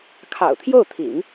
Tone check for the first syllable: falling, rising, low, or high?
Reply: low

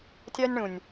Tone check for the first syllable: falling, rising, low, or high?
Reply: high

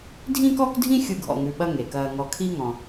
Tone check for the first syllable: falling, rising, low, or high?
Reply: high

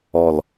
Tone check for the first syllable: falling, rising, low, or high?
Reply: low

